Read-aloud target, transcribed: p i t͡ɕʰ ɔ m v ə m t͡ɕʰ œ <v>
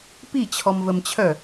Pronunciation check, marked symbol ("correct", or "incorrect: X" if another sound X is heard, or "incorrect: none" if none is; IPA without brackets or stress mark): incorrect: none